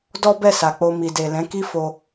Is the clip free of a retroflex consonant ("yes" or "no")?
yes